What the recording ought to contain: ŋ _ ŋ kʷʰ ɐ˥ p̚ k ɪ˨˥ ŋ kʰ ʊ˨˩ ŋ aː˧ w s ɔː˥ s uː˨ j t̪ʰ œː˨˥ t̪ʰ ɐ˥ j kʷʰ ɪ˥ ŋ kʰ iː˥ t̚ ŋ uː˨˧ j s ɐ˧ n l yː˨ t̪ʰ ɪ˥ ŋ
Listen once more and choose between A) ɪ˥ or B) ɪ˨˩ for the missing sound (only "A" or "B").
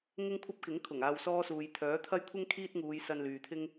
A